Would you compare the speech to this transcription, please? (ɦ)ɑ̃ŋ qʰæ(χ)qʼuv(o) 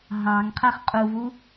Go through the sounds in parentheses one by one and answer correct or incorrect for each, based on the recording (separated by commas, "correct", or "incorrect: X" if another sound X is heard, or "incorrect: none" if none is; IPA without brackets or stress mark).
correct, correct, incorrect: u